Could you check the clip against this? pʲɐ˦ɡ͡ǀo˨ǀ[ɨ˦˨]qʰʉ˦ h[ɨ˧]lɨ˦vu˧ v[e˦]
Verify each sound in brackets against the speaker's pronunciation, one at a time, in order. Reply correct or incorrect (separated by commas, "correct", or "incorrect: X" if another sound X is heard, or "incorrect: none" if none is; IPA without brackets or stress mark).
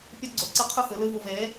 correct, incorrect: ɨ˨˦, incorrect: e˨˦